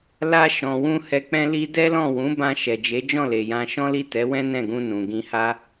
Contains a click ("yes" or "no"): no